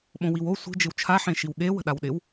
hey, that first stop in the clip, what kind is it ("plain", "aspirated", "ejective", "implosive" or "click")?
implosive